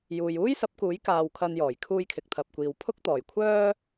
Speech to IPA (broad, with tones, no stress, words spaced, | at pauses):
juː˨juː˥jsɐ˨˥p̚kuː˨˥j kaː˧wkʰɐ˧njɔː˨˩j kʰuː˧jkʰɪ˨k̚t̪ʰɐ˨p̚kʷiː˨w pʰʊ˥k̚t̪ɔː˨˩jkʷʰœː˥